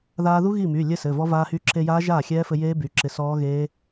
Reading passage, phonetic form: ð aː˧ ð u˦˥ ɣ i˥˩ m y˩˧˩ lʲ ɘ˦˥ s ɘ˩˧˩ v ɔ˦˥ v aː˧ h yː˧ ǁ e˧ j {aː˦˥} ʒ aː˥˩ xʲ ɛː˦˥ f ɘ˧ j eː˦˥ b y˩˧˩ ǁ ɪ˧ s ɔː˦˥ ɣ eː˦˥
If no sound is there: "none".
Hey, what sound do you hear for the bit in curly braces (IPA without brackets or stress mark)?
aː˦˥